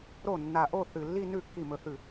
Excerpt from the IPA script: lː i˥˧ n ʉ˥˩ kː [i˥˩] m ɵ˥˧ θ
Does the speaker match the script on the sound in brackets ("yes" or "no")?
yes